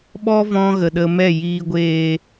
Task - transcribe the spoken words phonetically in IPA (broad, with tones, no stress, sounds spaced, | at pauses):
ɓ ɔ˦ v ɔ̃˧ ɣ ə˨ ɗ ə˧ m ɛ˦˨ j iː˨ ɡʷ eː˨